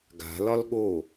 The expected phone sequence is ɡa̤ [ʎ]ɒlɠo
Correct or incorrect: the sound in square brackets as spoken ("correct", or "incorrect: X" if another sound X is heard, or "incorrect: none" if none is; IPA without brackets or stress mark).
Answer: incorrect: l